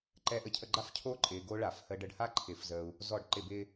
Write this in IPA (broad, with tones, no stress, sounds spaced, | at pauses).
ǃ ɛ˧ ʔ ə˧ cʰ ə˧ ɡ͡ǃ a˦˥ f cʰ o˦˥ ǃʼ ɪː˧ ɡ o˦˥ ɭ a˧˩˧ f h əː˧ ɖ ə˧ ɖ h a˦˥ ǃʰ ɪ˧˩˧ f z əː˧ u̯ | z ɔ˧˩˧ ɖ ǃ ɪ˧˩˧ b ɪː˧